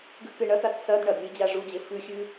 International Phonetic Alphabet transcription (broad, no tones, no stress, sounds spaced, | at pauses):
ɡ ʉ k ɨ ɳ ɐ t a t s ɐ d ɳ ɐ d lʲ ɨ d͡ʑ a ʐ u d͡ʑ e f ʉ xʲ ʉ